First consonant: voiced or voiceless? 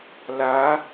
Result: voiced